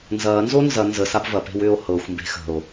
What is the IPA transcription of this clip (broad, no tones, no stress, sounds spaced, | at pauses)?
n z ɐː n z o n z ɐ n z ə s a b v ɐ p e̤ w ʏː o̯ h ɤ xʷ m b e̤ x ə̤ o̯